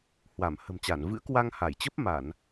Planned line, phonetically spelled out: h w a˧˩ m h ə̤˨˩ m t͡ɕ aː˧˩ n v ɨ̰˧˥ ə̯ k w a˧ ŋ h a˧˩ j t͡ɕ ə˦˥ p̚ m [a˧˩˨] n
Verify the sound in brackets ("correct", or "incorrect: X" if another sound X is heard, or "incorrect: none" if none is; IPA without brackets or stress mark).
correct